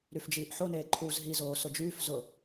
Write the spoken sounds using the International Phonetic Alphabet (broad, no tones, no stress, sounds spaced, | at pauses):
ɾ y f d͡ʒ iː ʔ ħ o n eː ǃʰ uː z ɦ i z oː s ʊ d͡ʒ yː f z ʊ